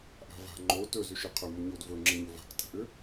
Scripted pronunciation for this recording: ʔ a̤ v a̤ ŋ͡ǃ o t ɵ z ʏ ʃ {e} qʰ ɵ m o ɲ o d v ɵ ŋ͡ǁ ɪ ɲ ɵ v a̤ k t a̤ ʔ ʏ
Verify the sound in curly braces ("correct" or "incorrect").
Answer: incorrect